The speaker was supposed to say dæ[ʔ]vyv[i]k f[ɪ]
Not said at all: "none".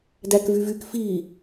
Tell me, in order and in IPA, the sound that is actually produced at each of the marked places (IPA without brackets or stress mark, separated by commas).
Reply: k, y, i